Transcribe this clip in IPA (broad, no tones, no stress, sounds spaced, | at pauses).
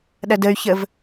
ɗ ɐ d ə y̯ ç ə v